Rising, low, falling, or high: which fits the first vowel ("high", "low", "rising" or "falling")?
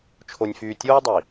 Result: low